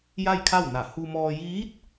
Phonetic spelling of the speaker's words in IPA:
j a˥˨ j kʰ a˥˨ w n a˧˩ h u˧ m ɔː˧ j iː˧˥ t̚

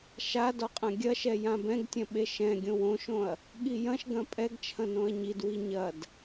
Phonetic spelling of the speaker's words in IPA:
ʃ a d ɔ qʼ ɐ̃ ɡʲ ɐ ʃ ɛ j ã b ɛ̃ ɡ tʲ ɐ̃ ɓ e ʃ ɛ̃ ɡʲ õ w õ ʃ õ ɐ̯ | ɠ i j ɐ̃ ʃ ɡ ɐ̃ pʼ ɛ ɡ t͡ʃʰ ɐ̃ n õ ɐ̯ ɲ i d w i ɲ ɐ d

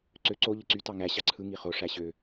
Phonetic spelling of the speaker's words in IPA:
ǀ ø ǀ o ʎ ɯ ǀ y t ɑ ŋ æ ɕ ɑ ǀʰ ɯ ŋ i χ o ʂ æ ɕ ø

